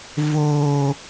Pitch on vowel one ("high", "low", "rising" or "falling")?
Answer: high